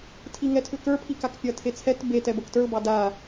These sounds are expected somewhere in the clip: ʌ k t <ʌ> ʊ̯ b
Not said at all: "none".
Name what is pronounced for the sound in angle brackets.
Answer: ə˞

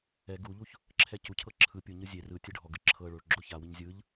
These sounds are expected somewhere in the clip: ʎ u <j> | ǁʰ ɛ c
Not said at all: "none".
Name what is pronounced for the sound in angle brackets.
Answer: ç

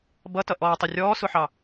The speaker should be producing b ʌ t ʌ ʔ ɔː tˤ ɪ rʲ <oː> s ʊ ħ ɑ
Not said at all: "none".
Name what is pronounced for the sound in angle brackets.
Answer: ɔː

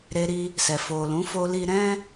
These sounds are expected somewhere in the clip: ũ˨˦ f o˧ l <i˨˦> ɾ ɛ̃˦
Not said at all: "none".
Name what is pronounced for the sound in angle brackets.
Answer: i˧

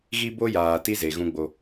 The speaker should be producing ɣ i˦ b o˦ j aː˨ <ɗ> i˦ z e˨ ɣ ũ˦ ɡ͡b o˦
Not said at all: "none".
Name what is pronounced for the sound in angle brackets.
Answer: t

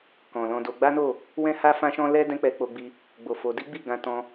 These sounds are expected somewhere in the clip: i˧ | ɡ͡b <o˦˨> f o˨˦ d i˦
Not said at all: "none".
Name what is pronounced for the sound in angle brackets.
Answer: o˨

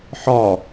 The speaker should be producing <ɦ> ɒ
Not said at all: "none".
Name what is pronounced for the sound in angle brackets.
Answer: ħ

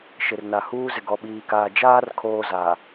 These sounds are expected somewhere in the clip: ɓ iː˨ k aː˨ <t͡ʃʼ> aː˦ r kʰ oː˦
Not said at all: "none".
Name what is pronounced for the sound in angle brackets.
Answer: d͡ʒ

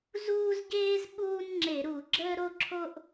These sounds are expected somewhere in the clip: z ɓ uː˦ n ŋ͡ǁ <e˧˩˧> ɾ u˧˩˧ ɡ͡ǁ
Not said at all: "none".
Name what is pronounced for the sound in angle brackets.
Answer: e˧˩˧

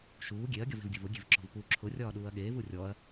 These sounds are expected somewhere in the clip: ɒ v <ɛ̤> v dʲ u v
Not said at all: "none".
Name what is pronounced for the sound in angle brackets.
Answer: e̤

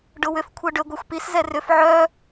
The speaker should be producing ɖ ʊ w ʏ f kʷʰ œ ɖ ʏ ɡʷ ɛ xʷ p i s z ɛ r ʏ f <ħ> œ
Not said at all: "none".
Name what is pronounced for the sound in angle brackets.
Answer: ʕ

